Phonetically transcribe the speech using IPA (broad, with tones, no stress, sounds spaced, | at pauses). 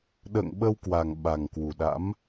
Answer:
ɗ ə̰ː˧˨ ŋ ɓ ə˧ w k w a˨˩ ŋ ɓ a˨˩ ŋ k w u˨˩ ɗ a̰˧˥ m